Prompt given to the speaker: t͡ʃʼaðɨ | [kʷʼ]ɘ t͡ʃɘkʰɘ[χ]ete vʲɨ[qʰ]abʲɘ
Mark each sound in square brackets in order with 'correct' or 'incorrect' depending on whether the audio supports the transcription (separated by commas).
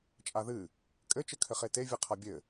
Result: incorrect, correct, correct